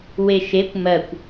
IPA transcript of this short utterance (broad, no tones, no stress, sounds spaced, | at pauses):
w e ʃ e kʷ m ɜ kʷ